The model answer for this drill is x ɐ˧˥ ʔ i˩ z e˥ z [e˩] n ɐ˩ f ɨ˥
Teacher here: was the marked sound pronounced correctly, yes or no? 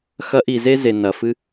yes